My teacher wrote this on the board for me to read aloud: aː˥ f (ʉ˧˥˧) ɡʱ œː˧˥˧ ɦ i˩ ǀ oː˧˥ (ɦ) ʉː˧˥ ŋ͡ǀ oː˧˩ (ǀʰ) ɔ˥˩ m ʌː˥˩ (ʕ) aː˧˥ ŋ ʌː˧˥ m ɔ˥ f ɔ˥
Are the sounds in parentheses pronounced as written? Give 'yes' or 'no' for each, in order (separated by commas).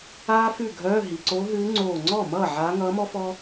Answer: no, yes, no, yes